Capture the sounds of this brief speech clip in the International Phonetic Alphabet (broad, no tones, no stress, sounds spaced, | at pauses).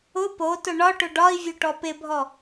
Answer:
ʊ p o t ʊ ɳ ɒ ʈ ʊ ɖ ɒ i̯ vʲ o ʈ ɔ p ɪ bʱ ɔ